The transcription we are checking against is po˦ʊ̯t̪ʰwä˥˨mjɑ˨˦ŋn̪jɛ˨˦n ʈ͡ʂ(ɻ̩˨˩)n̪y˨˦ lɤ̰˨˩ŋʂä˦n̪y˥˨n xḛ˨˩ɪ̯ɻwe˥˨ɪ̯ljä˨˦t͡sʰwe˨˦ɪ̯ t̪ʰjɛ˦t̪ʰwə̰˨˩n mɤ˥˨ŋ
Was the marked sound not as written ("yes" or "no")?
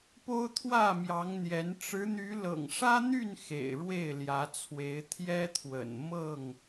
yes